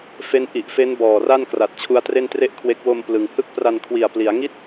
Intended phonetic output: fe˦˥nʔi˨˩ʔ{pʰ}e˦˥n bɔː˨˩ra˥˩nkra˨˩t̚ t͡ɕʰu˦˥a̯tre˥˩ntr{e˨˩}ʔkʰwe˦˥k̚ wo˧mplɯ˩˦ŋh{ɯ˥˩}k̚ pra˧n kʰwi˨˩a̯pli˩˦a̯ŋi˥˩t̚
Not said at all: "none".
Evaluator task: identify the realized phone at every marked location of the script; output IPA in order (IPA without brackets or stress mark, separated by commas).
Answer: f, e˥˩, ɯ˥˩